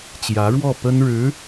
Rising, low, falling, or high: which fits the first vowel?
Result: rising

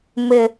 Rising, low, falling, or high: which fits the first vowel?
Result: low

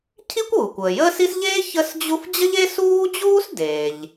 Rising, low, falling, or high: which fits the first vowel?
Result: high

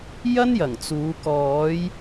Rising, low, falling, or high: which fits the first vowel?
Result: high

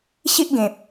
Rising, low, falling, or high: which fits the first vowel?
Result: high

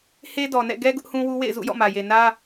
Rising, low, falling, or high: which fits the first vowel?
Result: high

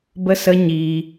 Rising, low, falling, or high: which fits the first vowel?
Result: high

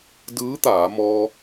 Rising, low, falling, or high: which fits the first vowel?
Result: rising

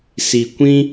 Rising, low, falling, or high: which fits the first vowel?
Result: low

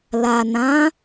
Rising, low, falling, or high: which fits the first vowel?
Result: low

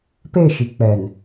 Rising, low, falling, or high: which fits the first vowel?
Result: falling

